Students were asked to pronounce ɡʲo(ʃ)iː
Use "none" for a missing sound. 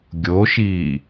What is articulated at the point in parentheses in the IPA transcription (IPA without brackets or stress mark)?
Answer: ʃ